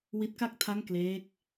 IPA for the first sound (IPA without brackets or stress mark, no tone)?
w